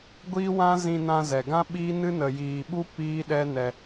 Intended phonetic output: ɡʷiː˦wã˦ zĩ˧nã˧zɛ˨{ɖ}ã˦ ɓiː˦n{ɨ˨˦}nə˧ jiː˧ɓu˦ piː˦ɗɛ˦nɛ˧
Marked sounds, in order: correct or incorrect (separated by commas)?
incorrect, incorrect